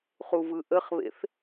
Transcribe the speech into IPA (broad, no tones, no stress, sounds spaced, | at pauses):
χ u v ɯ ʔ ə χ β ḛ θ